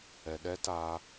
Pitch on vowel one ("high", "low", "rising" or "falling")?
low